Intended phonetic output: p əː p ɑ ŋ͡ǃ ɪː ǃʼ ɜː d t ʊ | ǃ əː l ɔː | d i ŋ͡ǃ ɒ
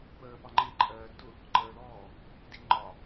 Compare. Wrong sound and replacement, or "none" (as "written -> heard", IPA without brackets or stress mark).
none